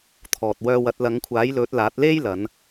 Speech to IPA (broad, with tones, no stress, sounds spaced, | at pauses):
t̪ʰ ɔː˨ t̚ w œː˧ w ɐ˨˥ t̚ l ɐ˨˧ ŋ kʷʰ aː˨˥ j l ɵ˨˥ t̚ l aː˨˥ t̚ l e˥ j l ɐ˨˧ n